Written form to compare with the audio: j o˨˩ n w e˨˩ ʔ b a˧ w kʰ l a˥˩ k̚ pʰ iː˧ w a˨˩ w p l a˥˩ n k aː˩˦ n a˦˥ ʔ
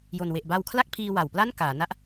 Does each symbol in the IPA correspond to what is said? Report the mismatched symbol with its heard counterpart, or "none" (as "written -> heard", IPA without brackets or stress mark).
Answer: none